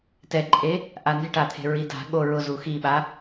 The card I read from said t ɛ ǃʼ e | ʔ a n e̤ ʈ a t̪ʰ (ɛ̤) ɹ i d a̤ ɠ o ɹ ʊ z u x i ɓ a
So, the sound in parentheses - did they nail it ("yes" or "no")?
no